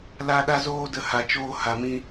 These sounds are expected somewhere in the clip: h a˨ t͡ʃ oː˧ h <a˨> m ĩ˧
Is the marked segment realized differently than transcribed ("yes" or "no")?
no